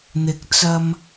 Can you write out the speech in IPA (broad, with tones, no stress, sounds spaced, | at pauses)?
n̪ ɪ˨˥ k̚ t͡s ɐ˧ m